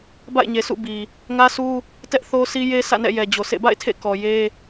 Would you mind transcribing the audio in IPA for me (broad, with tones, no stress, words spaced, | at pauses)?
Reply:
ba̰˦˨ɪ̯ɲe˨sṵ˦˨bi˨ | ŋä˦sʰu˦ | tɛ˦ʔθo˦sʰi˦ je˦sʰä̰˦˨nɛ̰˦˨ jɛ˨d͡ʑo˨sʰḛ˦˨ ba̰˦˨ɪ̯ tʰḛ˦˨kɔ˨ je˦